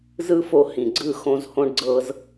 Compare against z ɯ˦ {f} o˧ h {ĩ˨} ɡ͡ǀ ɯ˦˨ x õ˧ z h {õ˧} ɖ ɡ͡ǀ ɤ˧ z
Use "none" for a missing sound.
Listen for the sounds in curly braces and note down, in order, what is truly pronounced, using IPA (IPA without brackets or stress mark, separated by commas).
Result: f, ĩ˨, õ˧